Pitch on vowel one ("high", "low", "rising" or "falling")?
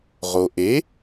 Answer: low